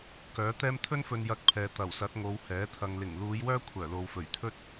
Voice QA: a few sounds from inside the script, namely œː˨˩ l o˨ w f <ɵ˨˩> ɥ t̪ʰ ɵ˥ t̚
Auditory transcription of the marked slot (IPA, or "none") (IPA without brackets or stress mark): ɵ˨˩